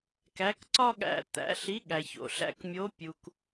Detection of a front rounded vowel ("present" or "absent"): absent